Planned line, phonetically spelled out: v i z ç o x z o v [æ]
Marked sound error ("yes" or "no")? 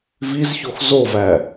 no